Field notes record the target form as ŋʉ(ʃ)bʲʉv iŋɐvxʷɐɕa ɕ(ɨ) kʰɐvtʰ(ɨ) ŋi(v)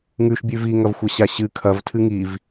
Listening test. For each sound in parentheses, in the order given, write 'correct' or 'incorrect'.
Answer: correct, correct, correct, correct

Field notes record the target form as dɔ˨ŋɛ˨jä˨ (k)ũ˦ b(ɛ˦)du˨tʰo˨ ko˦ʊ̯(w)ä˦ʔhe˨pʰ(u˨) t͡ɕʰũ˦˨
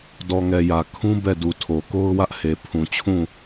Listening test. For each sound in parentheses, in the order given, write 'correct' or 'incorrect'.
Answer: incorrect: kʰ, incorrect: ɛ˦˨, correct, incorrect: ũ˨

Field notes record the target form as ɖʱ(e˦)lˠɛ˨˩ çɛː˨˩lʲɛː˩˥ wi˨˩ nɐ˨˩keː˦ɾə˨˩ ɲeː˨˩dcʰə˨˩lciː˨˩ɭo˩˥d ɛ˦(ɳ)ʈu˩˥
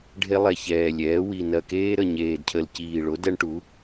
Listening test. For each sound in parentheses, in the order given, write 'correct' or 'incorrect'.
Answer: correct, correct

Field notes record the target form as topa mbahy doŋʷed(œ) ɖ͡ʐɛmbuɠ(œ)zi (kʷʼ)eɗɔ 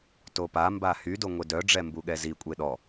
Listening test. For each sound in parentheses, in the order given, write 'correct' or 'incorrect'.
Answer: correct, incorrect: ɛ, correct

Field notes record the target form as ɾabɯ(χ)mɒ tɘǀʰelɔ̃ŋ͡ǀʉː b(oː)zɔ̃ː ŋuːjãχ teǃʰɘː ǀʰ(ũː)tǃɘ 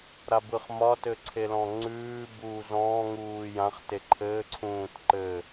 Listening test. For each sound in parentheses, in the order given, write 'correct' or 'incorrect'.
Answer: correct, incorrect: uː, correct

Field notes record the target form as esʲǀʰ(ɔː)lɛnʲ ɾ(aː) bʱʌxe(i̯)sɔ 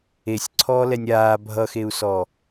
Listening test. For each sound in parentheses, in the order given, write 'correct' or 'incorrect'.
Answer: correct, correct, incorrect: u̯

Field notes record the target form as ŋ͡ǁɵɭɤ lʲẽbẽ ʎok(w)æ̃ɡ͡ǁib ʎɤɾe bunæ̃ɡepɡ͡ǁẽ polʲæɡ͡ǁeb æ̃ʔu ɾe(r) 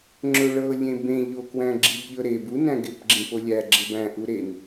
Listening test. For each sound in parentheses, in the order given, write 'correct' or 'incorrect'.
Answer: correct, incorrect: n

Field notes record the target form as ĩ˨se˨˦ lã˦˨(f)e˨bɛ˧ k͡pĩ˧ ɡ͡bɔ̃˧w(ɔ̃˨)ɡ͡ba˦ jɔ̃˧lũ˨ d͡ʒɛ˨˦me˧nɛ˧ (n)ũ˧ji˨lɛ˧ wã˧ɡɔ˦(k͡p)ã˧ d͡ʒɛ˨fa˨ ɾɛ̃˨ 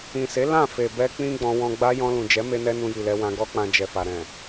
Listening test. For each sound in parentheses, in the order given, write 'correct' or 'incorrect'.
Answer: correct, incorrect: ɔ̃˧, correct, correct

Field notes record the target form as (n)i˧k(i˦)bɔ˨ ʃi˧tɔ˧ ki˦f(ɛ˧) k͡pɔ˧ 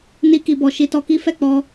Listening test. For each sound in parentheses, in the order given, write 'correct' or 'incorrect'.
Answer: correct, incorrect: i˨, incorrect: ɛ˦˨

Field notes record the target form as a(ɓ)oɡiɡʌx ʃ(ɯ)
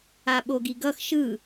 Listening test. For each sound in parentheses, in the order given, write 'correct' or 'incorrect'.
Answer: correct, correct

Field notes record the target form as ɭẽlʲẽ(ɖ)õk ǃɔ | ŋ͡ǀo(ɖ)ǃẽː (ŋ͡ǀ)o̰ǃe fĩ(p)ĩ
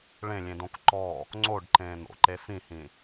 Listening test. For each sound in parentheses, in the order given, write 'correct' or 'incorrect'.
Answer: incorrect: d, correct, incorrect: n̪, incorrect: h

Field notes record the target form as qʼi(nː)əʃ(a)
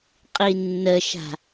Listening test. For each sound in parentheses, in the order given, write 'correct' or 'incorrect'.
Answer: correct, incorrect: a̤

